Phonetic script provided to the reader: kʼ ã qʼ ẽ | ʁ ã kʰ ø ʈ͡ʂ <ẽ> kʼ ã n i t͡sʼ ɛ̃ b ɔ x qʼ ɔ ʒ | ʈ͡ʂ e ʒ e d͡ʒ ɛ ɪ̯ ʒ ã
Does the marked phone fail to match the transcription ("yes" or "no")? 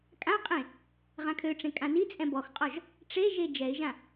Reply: no